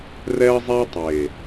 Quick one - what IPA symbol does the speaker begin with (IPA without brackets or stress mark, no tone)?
r